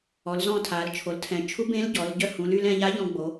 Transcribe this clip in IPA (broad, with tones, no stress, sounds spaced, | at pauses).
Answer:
ɔ˩˧ l z ɔ̃˧ tʰ a˩˧ l t͡ʃʰ o˩˧ l tʰ ɛ̃˩˧ t͡ʃʰ u˧˥ b ẽ˧˥ l ɟ ɔ˩˧ l ɟ œ˧ h ũ˩˧ l y˧ l ɛ̃˧ ʎ a˧˥ ʎ ɔ̃˧ ɡ͡b o˩˧